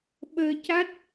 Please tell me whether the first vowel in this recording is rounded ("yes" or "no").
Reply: no